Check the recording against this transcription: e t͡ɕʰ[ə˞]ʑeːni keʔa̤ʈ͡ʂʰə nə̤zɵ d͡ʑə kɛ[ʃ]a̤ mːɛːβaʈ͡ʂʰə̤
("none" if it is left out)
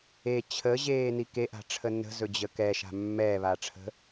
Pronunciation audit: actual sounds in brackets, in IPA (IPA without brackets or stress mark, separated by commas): ə, ʃ